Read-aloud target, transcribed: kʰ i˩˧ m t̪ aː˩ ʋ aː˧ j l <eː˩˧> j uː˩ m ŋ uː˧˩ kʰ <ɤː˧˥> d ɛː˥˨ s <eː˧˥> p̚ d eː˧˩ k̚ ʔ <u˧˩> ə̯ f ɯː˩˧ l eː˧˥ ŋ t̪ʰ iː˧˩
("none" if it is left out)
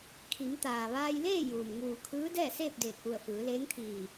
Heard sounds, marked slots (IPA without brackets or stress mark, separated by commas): eː˥˨, ɯː˧˥, eː˥˨, u˧˩